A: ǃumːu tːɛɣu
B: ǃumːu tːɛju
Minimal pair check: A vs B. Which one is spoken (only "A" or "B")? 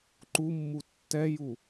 B